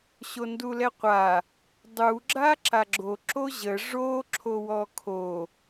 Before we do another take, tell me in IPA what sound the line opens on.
ɕ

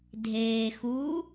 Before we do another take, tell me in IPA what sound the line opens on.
dʱ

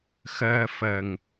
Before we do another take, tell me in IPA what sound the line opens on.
x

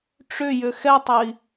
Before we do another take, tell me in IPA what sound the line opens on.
ʈ͡ʂ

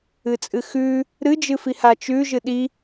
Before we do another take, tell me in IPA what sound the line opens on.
ɨ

